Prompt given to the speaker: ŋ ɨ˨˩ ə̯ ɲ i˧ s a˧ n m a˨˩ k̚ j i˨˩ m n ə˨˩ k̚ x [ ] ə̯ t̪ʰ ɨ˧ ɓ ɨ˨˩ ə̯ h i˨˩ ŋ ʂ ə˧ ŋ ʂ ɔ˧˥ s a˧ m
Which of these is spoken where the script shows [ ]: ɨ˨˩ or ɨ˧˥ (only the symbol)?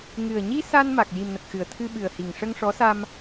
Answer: ɨ˨˩